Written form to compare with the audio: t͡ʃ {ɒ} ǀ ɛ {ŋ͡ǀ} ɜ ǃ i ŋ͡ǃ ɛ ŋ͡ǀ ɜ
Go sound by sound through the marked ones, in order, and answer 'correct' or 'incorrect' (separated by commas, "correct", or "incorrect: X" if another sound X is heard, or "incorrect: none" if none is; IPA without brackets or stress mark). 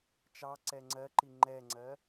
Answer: incorrect: ɑ, correct